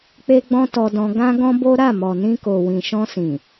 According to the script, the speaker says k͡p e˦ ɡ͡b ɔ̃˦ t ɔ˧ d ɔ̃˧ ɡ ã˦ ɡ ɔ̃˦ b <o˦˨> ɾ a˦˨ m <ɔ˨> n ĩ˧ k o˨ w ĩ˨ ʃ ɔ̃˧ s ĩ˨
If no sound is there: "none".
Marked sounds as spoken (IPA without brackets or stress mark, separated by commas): o˦, ɔ˨